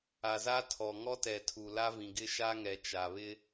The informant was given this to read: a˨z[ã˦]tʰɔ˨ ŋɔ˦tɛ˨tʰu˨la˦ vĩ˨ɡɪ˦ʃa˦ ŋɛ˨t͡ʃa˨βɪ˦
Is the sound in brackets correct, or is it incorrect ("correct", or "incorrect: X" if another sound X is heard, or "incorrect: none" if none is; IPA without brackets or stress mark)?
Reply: incorrect: a˦